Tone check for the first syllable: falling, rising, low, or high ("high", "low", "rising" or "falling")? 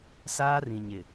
high